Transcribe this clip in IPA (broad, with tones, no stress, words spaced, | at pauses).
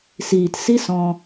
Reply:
siː˨tsi˦ sɔ̃˧